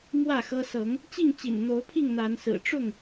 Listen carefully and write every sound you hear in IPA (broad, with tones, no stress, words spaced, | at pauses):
mwä˥˨xɤ˦ sɤ˨˦ŋ | t͡ɕi˥˨ŋt͡ɕḭ˨˩nn̪o˨˦ʊ̯pʰi˥˨ŋ n̪a˨˦nsɹ̩˨˩ ʈ͡ʂʊ˥˨ŋ